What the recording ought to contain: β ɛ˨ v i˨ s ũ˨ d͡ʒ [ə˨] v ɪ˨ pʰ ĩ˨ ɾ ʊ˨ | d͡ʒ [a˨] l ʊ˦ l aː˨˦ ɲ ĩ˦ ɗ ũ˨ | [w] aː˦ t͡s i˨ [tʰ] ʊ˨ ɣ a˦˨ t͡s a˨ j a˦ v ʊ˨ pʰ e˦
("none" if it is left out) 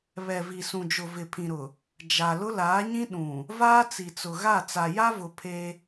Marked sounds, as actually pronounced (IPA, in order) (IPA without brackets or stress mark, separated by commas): ʊ˨, a˨, v, t͡s